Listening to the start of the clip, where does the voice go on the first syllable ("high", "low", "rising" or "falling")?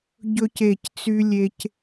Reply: high